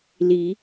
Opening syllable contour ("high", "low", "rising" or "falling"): rising